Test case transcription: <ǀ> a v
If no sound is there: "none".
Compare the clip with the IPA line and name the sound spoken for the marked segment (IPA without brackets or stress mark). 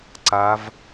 ǀ